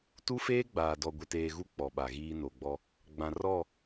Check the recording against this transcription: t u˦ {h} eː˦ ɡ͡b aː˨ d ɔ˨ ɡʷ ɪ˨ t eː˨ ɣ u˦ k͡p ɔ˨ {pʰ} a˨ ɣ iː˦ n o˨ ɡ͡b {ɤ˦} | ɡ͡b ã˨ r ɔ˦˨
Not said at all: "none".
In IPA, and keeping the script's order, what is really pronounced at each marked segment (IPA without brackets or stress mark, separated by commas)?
f, ɓ, ɔ˦